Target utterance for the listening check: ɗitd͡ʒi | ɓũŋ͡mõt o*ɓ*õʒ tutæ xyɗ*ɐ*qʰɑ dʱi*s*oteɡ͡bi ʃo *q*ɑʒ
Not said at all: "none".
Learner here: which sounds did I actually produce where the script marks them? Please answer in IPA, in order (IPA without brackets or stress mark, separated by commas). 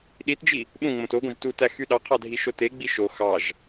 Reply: ɡ, ɑ, ʃ, x